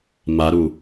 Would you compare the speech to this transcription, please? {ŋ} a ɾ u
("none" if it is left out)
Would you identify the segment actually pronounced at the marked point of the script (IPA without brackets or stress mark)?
m